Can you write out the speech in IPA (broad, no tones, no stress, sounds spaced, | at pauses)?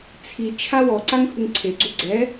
t͡sʰ i t͡ʃʰ a w ɔ ǀ a ŋ h u ŋ ǀʰ e ɡ͡ǀ u ɡ͡ǀ ɛ